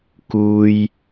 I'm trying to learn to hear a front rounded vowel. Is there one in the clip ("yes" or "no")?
no